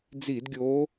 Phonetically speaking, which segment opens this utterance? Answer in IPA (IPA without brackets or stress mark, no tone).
d͡z